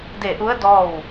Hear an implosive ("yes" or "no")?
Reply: no